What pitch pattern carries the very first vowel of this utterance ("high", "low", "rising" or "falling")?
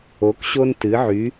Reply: rising